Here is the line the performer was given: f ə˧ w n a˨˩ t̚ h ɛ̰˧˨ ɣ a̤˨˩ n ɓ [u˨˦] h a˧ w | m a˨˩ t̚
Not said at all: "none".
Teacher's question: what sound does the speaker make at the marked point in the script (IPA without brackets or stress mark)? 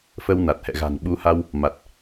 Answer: u˨˦